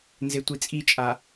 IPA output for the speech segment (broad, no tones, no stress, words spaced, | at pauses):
nzetʷit͡sʼit͡ʃʼa